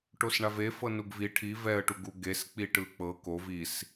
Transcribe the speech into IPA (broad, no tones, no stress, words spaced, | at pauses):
ʈosɳavefɤ nuɡvi ʈʰi vɛə̯ʈuɡu ɡesk͡piʈɯ k͡pɤ kov is